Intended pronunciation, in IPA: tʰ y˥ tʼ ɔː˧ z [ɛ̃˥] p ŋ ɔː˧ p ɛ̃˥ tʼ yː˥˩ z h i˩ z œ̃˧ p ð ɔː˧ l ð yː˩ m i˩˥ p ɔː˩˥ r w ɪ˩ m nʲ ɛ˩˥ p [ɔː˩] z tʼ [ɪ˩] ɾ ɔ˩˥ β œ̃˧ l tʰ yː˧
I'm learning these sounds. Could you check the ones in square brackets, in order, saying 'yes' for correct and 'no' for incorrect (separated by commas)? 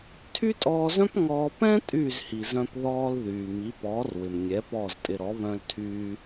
no, no, no